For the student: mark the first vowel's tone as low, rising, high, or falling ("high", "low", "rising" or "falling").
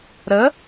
rising